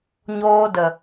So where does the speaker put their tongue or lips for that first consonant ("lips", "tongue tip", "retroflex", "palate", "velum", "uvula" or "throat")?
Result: palate